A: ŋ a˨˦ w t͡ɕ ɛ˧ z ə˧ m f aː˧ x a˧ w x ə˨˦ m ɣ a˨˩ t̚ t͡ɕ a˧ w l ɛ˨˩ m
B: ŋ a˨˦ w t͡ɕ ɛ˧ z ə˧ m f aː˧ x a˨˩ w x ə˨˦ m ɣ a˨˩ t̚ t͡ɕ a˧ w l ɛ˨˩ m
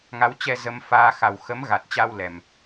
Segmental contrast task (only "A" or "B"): B